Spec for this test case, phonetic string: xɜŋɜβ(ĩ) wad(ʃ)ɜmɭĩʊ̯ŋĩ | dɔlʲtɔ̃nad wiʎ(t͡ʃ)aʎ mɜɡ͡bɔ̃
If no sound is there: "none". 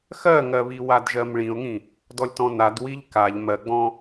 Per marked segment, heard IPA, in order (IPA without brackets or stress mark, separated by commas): i, ʒ, k